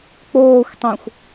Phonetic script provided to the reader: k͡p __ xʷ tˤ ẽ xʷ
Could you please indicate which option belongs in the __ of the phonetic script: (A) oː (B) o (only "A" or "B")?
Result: A